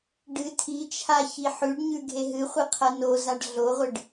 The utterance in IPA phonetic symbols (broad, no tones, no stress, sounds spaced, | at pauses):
ɖ ɨ tʰ i t͡ʃʰ a ç i ħ ʉ ɖ ɲ ʉ ɡʱ e ɦ ɨ χʷ i qʰ ɐ n o z a ɖ ɮ o ʁʷ ɨ ɖ